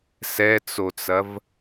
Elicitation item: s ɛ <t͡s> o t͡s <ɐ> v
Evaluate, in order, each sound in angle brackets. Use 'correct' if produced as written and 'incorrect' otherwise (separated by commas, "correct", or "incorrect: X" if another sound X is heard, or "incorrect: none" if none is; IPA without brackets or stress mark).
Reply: correct, correct